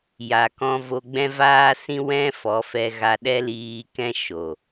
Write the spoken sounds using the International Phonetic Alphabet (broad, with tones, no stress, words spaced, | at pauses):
ja˨kɔ̃˧ vo˧ɡ͡bɛ̃˦ vaː˦sĩ˦ wɛ̃˦ fɔ˨˦fɛ˧ɣa˧ ɗɛ˦liː˧kɛ̃˦ ʃo˨